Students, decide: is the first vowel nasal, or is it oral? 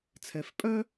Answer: oral